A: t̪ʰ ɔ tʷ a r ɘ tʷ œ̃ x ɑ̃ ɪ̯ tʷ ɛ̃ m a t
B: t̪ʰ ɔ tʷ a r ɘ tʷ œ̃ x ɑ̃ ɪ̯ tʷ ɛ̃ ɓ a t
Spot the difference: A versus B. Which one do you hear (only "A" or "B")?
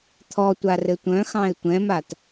A